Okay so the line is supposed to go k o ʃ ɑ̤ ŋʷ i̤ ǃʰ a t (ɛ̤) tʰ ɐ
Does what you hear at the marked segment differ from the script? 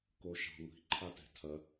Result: no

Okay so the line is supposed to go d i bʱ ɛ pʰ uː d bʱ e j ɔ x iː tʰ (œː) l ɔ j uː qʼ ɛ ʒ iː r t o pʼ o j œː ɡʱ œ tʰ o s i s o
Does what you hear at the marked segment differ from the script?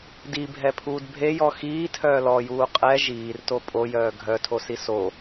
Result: no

